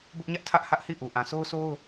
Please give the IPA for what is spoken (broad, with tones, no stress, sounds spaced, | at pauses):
b ʊ˦ ʔ ɲ ä˦ ʔ tʰ ä˦ ʔ h ä˦ ʔ h i˦˨ ʔ u˨ ʔ ã˨ s o˦ ʊ̯ s o˦ ʊ̯